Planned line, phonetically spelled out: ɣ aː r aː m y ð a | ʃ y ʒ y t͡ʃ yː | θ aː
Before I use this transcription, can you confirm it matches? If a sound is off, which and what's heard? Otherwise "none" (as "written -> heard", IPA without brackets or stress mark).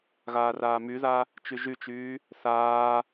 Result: ʃ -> t͡ʃ